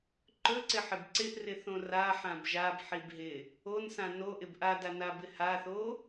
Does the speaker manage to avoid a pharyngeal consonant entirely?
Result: no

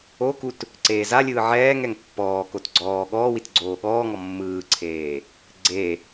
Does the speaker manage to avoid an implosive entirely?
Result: no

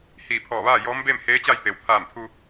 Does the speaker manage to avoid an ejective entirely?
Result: yes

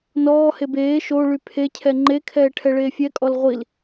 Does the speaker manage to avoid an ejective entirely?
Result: no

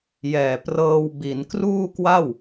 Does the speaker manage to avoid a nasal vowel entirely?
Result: yes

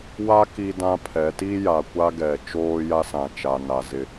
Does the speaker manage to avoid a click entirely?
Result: yes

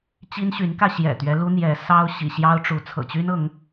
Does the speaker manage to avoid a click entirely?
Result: yes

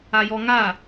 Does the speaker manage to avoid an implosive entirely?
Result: yes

